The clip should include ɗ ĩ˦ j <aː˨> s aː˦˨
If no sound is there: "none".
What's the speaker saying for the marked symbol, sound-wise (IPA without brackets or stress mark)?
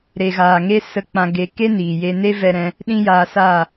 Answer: aː˧